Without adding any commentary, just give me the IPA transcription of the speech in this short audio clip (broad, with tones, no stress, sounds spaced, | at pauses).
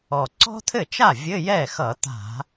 ɔ˨˩ ǀ ɔ̤˥ t̪ʰ ɘ˥˩ t͡ʃ a˥˩ vʲ ɘ˧˥˧ j ɛ˥˩ x ʌ˧˩˧ t̪ a̤˧˩˧